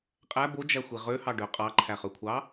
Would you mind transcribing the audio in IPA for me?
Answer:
qʼæ bod͡ʒæxʷi ʁøhɑɖø qʼɑǃʰæχøkʷʰɑ

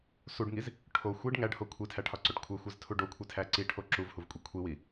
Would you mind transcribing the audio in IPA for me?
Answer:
suɖŋiz | ʈʰo xʷiɖ ŋæɖho kʷʰitʰæʈʰɒǀoʈ kʷʰexʷeztʰu ɖokʷʰitʰæ ǀiʈʰo ǁuvhuvkʷʼi kʷʰiwi

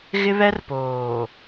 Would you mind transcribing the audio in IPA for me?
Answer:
ɣɪ˦βɛ˦r poː˨

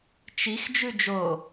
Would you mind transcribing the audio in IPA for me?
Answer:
t͡ʃix d͡ʒʉd͡ʒo

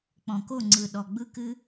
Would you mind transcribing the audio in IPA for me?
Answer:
k͡pɔ̃˨ko˦˨ŋ͡ǀɯ˨ɗɔ˨ ɡ͡bɯ˧kɨ˧

